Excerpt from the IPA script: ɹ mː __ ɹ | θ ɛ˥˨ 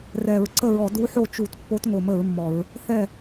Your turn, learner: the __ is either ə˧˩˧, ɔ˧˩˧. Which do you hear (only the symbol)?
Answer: ɔ˧˩˧